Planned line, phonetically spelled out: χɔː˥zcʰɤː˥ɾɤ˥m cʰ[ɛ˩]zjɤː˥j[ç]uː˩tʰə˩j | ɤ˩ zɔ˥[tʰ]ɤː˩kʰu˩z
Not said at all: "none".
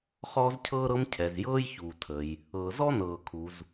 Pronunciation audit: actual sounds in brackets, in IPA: ɛ˩, ç, n

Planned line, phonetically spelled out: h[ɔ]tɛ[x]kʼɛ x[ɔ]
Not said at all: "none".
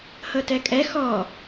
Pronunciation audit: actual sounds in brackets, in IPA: ɤ, none, ɔ

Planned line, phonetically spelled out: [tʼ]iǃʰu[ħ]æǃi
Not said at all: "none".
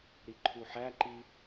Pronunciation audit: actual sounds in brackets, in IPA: ɾ, ħ

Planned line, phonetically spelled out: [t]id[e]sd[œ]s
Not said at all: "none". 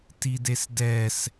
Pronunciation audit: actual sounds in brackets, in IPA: t, e, ɛ

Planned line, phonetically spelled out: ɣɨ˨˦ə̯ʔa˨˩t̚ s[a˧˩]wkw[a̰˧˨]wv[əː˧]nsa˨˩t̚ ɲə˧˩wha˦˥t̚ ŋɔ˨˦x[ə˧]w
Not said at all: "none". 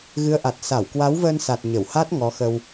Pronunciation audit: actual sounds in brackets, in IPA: a˧˩, a˨˦, əː˧, ə˧

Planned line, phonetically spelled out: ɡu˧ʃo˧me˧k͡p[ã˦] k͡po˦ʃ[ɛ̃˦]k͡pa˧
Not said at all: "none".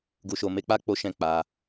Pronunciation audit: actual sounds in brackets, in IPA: a˦, ɛ̃˦˨

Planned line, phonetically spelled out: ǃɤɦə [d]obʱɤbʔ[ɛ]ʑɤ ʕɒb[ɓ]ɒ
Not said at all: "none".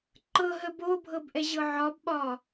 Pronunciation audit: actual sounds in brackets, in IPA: b, ɛ, ɓ

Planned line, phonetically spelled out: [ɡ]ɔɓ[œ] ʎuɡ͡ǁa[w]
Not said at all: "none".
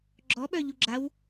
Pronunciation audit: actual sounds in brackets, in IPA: ɡ͡ǁ, œ, w

